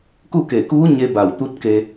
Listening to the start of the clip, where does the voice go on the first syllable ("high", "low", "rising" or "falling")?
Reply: falling